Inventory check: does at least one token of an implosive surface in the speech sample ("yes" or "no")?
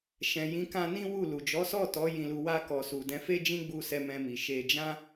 no